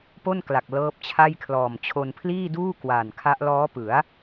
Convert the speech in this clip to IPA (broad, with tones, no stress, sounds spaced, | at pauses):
p o˥˩ n k l a˨˩ k̚ l ɤː˦˥ p̚ t͡ɕʰ a˥˩ j kʰ l ɔː˨˩ m t͡ɕʰ o˧ n pʰ l iː˥˩ d uː˥˩ k w a˨˩ n kʰ a˦˥ ʔ l ɔː˦˥ p ɯ˩˦ a̯